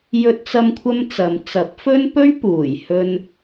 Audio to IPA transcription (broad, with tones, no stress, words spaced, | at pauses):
jɵ˥t̚t͡sɐ˥mkʷʰɐ˥mt͡sɐ˨˧m t͡sɐ˨˥p̚fɵ˥npɵ˥ɥ puː˨˩jhɵ˧n